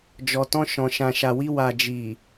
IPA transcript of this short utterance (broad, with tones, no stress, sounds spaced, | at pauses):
d͡ʒ ɔ˨ t ɔ̃˧ ʃ ɔ̃˨ ʃ ã˨ ʃ a˨ w i˧ w a˨ d͡ʒ i˨